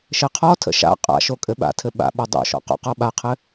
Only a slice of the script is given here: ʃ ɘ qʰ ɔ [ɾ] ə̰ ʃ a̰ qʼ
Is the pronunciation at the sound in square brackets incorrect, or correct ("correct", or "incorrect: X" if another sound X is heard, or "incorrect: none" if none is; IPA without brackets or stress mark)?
incorrect: tʰ